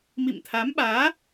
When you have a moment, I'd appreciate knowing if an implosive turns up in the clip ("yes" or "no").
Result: yes